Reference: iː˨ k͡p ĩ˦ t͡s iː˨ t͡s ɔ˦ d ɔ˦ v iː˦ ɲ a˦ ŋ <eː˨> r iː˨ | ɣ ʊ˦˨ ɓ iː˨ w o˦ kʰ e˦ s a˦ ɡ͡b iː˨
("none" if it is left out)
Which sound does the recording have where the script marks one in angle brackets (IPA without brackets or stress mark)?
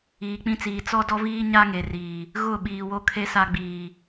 e˨